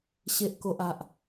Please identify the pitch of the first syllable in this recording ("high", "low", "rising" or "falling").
low